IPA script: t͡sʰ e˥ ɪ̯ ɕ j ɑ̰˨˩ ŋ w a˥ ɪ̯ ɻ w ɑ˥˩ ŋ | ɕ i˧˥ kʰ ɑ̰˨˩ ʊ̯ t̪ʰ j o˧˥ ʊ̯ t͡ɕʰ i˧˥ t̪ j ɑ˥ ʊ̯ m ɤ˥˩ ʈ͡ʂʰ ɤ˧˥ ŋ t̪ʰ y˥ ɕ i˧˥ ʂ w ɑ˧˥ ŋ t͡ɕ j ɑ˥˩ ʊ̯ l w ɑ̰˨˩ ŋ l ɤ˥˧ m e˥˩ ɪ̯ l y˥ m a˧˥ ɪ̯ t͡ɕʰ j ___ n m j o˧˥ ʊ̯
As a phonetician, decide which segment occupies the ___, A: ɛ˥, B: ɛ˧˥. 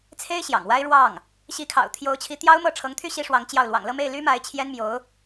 A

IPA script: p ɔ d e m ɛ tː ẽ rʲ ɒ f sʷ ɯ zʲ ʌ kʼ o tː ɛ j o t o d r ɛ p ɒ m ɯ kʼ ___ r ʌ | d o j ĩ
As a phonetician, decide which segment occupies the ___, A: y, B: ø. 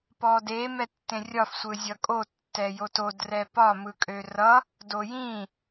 B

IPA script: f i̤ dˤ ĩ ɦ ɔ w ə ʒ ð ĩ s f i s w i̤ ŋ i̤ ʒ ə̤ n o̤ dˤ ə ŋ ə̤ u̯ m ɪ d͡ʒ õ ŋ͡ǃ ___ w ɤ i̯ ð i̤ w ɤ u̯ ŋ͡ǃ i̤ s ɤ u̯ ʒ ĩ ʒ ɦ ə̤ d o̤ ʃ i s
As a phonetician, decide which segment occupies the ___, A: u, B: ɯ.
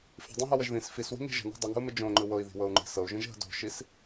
B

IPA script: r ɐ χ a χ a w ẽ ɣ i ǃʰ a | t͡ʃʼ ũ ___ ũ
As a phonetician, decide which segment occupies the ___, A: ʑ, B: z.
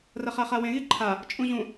A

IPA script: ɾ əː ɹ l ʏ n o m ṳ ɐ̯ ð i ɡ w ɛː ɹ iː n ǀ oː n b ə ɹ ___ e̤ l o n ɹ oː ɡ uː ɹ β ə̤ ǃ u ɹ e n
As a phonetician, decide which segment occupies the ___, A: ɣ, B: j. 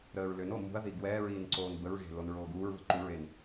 A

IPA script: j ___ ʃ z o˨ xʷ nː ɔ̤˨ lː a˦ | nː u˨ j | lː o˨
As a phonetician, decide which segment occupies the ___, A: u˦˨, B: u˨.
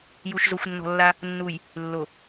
B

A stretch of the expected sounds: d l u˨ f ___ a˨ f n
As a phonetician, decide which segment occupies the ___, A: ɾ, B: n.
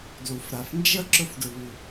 A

